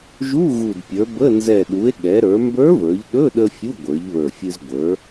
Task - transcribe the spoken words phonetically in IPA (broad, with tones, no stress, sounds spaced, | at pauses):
ʒ u˧˥˧ ɣ u˨˩ d pʲ ə˞˩˧ b ə˧˥˧ n z ɛ˨˩ ɗ u˩˧ e̯ ɠ ɛ˩˧ ɾ ə˞˩˧ m b ə˞˧˥ v ə˞˩˧ ʎ ɗ ɵ˧˥˧ ɗ ə˧ fʲ u˧˥˧ ɡʷ ə˞˩˧ ʎ β ə˞˨˩ fʲ ɨ˧ z ɡʷ ə˞˩˧